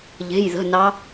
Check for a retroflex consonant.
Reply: absent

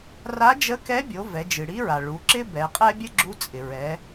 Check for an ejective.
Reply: present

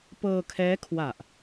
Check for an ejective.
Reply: absent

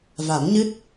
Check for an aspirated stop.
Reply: absent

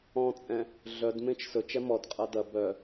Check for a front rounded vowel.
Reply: present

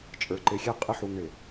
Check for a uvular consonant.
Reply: present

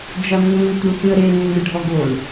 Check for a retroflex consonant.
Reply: present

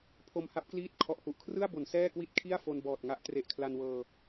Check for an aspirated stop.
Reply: present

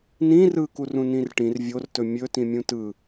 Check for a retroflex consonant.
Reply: present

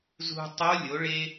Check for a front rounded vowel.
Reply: absent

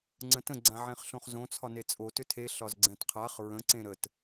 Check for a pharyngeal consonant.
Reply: present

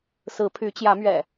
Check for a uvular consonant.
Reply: absent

